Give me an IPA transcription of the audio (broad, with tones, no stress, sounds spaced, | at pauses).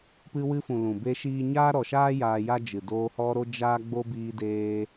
p ɨ˧ w ɨ˧ f ũ˨ l ũ˨ b e˦ ʃ iː˦ ɲ aː˦ ɾ ɔ˨ ʃ aː˦ j aː˧ j a˦ d͡ʒ ɨ˨ d oː˧ h ɔ˦ ɾ o˦ d͡ʒ aː˦ ɡ͡b o˦ b iː˦ d eː˦